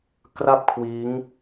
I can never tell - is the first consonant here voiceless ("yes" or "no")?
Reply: yes